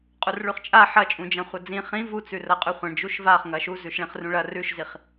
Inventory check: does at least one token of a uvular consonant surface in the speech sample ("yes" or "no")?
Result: yes